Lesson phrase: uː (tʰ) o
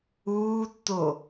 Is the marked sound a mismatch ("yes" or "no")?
yes